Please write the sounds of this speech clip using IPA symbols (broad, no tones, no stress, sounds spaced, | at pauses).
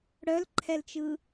ɽ œ l ǃʰ ɛ l t͡ʃ ɯ